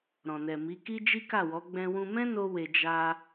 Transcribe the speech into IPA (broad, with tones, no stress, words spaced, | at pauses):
ɾɔ̃˨nɛ˨mi˨˦ki˦ d͡ʒi˦ka˦˨wɔ˨˦ ɡ͡bɛ̃˧wũ˧mɛ̃˦ no˧we˨ d͡ʒa˧